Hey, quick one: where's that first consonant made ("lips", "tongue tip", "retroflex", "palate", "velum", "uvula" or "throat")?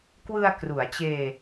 velum